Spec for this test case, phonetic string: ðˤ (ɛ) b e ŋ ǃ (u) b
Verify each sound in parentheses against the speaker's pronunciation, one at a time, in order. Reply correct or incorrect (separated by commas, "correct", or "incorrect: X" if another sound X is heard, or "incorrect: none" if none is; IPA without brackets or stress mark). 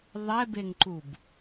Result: correct, correct